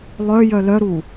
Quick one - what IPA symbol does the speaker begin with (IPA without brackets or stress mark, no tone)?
lˠ